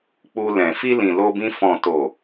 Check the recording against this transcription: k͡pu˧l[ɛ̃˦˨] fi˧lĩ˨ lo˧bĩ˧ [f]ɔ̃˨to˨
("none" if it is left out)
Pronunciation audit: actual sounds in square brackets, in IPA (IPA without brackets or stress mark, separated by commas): ɛ̃˨, f